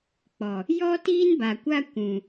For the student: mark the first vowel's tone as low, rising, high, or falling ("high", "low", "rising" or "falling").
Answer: low